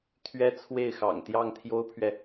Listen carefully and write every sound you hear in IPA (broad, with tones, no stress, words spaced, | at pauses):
t̪ʰɥɛ˥t͡sʰwe˥˩ɪ̯xɑ̰˨˩ŋ t̪jɑ˥˩ŋt̪ʰjo˥ʊ̯pʰɥɛ˨